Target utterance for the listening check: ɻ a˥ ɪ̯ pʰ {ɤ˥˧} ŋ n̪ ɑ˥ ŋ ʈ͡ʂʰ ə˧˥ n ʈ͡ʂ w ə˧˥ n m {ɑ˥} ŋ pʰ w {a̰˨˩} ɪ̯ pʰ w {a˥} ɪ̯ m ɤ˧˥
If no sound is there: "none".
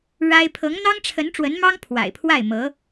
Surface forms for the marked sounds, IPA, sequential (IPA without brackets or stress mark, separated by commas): ɤ˧˥, ɑ˥, a̰˨˩, a˥˩